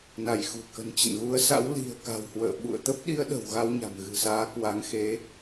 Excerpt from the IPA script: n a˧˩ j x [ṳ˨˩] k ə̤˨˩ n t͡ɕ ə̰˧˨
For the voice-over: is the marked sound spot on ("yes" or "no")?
yes